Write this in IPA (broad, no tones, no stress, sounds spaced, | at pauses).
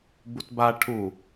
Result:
b u t b a ʈʰ u